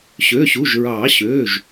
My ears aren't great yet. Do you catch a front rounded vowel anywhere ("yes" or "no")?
yes